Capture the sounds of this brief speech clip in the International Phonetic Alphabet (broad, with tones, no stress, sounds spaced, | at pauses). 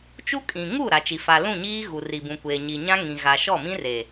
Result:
t͡ʃ u˦ kʼ ĩ˨ ŋ u˦˨ ɾ a˨ t͡ʃ i˨ f a˨ l ũ˦˨ ɲ iː˦ ɣ u˨ r i˨ b ũ˨ kʷ eː˨ ɲ i˨ ɲ ã˦ ŋ ĩ˨ ɣ a˨ ʃ ɔ˦˨ m ĩ˦ r e˨